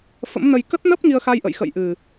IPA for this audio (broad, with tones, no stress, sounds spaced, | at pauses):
f ə̰˧˥ m n ə˧ j k ə˦˥ t̚ n ə˦˥ p̚ ŋ i˧ ə̯ x a˧ j ʔ ə̰˧˨ j x ə̰˧˨ j ʔ ɨ˨˩